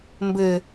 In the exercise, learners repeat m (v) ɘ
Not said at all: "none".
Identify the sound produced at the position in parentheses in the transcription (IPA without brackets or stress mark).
b